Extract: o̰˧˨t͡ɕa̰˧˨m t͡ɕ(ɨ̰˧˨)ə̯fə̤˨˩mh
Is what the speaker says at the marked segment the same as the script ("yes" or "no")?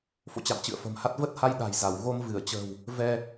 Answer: yes